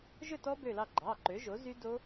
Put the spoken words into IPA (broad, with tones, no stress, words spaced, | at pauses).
ʒɵ˥˨tɔ˦˥bø˧˩lɑ˧˩ ɡ͡ǃɑ˩˧˩ ǃø˩˥ʒo˩˥ zy˦˥do˦˥